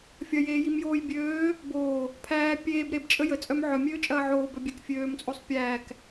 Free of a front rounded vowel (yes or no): no